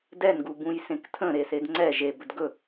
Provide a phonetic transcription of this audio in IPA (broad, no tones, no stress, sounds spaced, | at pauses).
d ɛ n ɡ u b ũ j s ẽ k tʰ ə̃ ɾ e s e d ŋ͡ǀ ɛ ʒ e b ɵ d ɡ ɵ